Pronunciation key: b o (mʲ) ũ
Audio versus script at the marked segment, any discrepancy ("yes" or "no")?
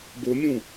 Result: no